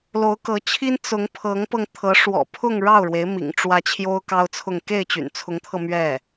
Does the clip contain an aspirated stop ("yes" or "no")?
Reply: yes